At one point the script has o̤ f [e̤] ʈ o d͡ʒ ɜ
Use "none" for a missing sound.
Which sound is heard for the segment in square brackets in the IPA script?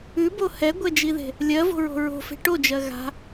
e̤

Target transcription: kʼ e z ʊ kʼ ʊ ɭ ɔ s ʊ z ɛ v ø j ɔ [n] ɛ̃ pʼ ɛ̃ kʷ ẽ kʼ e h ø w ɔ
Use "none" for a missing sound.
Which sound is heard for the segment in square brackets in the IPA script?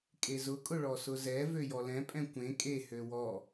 l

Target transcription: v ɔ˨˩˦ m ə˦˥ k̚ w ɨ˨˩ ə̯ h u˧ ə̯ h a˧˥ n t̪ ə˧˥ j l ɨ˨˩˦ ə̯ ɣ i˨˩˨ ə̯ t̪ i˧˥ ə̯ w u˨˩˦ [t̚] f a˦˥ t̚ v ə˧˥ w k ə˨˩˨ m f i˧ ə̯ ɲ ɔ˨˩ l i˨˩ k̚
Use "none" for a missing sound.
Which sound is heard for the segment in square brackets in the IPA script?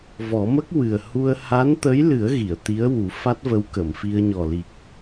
none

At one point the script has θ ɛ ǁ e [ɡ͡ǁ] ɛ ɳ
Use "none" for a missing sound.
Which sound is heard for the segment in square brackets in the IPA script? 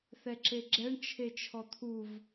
ɡ͡ǁ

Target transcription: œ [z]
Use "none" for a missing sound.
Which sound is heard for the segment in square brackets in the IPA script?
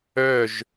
ʒ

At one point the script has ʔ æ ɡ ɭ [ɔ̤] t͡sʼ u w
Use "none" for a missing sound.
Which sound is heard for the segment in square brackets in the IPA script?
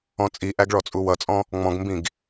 ɔ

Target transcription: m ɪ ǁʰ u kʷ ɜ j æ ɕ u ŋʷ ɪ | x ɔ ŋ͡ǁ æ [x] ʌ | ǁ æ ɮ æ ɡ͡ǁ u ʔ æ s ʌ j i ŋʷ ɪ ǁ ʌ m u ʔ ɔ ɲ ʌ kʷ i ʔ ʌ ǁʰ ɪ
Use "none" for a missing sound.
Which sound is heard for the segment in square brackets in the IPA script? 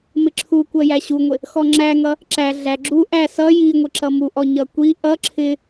ŋ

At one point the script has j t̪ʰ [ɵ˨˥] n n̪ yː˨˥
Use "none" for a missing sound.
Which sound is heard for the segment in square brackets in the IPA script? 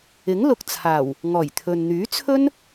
ɵ˨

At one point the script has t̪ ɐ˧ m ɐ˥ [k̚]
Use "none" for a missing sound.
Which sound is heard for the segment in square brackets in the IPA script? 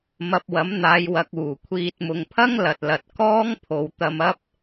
p̚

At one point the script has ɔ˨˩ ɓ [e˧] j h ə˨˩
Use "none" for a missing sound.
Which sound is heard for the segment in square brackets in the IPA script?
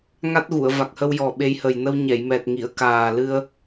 e˧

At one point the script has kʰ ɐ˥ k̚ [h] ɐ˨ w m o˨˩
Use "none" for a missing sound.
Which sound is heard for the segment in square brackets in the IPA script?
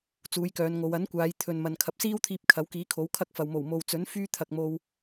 f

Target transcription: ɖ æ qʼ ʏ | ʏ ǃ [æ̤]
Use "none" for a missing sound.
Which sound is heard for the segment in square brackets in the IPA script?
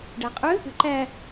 æ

